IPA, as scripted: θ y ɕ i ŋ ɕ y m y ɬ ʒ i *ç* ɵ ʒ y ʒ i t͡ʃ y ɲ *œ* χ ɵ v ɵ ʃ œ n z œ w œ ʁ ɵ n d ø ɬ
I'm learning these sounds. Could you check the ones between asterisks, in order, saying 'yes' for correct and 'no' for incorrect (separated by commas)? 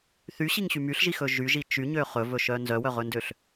no, no